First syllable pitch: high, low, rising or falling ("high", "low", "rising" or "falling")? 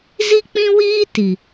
high